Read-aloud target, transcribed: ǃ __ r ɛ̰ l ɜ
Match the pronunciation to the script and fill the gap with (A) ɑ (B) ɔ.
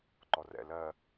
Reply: B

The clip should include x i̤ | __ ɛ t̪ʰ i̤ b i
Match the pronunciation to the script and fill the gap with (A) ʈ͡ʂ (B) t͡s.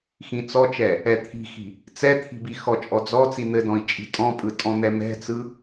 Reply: B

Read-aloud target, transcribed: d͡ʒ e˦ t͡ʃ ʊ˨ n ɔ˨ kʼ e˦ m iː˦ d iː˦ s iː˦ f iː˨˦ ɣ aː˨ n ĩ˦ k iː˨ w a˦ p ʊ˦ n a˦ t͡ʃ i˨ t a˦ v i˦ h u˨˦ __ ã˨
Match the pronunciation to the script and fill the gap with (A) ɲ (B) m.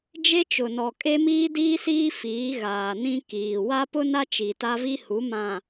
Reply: B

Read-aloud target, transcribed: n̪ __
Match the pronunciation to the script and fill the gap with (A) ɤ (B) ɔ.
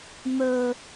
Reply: A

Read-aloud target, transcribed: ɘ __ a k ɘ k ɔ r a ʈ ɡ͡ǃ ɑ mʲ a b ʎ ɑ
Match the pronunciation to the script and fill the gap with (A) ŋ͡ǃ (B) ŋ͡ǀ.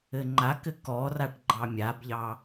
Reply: A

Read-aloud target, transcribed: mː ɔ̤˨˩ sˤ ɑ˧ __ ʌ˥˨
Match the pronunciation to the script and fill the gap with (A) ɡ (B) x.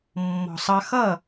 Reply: B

